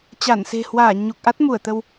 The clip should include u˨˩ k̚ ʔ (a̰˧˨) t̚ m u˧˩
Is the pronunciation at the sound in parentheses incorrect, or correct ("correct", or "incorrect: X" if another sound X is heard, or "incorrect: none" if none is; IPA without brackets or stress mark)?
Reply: incorrect: a˦˥